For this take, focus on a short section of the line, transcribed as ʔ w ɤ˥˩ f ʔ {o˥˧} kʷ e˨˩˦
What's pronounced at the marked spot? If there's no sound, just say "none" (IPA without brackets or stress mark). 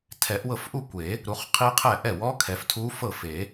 u˥˧